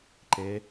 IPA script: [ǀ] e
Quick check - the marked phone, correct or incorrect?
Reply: incorrect